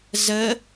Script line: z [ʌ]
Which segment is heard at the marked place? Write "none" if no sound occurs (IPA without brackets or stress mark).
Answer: ə